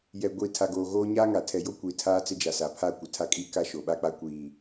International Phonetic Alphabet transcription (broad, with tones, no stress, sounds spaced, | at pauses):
j ɛ˨ ɡʷ i˨ tʰ a˨ ɡ oː˨ ɣ oː˦ ɲ aː˦ ŋ a˨ tʰ ɛ˨ j o˦ kʷ iː˨ tʰ aː˦ t͡s ɪ˦ d͡ʒ a˨ s aː˨ pʰ a˦˨ kʷ ɪ˨ tʰ a˦ kʼ iː˦ k a˦ ʃ o˨ ɓ a˦ k͡p a˦ kʷ iː˨